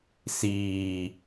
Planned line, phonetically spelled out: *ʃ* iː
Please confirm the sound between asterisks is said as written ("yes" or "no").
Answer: no